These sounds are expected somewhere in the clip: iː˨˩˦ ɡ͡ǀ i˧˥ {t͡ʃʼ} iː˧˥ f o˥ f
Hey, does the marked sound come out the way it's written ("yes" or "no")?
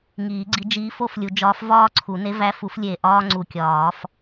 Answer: no